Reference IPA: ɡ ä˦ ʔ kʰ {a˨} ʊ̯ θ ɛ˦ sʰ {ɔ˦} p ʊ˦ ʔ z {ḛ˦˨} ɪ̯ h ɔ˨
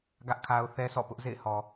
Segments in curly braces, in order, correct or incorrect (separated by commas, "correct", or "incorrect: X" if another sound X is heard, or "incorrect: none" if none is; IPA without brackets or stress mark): incorrect: a˦, incorrect: ɔ̰˦˨, correct